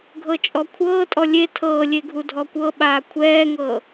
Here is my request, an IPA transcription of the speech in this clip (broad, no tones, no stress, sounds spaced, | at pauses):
ɡʱ ɤ t͡ʃʼ ɔ kʷʰ ɤː tʼ ɔ lʲ e tʰ ɤː lʲ e ɡʱ u dʱ ɔ kʷ ɤ ɓ aː kʷʰ ɛː ŋ ɤː